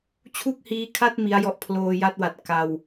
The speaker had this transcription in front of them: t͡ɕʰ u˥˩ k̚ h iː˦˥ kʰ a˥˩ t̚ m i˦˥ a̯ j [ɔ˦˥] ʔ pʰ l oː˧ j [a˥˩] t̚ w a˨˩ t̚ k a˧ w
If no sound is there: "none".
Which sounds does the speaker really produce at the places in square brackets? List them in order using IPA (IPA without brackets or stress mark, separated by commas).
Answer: ɔ˦˥, a˥˩